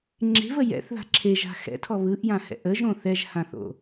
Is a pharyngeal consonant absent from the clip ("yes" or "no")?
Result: yes